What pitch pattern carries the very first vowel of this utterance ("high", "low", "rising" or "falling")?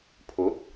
rising